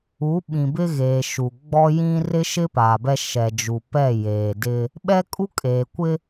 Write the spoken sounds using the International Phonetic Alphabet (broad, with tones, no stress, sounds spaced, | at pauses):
u˨˦ ɓ ĩ˨ b ɪ˦ ɣ eː˨ ʃ u˨ ɡ͡b ɔ˦ j ĩ˦ r ɪ˦ ʃ ɪ˦ p aː˨ b ɛ˦ ʃ ɛ˨ d͡ʒ u˨ p ɛ˦˨ j eː˨ d ɪ˦ | ɓ ɛ˦ kʼ u˦ kʼ eː˨ kʷ ɪ˦